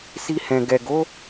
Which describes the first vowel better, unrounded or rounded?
unrounded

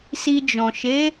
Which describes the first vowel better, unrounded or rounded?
unrounded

